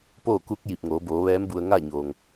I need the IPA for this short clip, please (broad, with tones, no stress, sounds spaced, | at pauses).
p oː˥˨ k u˧˥ k̚ j i˧˩ p̚ ŋ oː˩˧ b oː˩˧ ʋ ɛː˧˥ m b u˧ ə̯ ŋ a˥˨ ɲ o˩ ŋ